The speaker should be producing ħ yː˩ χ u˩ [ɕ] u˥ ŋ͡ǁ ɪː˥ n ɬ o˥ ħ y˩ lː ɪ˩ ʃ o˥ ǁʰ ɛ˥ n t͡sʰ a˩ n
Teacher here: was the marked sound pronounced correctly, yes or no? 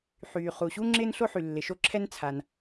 yes